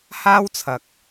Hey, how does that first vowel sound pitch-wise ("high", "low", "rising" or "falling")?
high